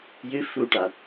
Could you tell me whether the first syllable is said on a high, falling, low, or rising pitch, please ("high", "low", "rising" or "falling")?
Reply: rising